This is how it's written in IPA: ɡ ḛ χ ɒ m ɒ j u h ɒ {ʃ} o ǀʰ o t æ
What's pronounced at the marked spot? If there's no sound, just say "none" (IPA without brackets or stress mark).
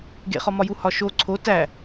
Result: ʃ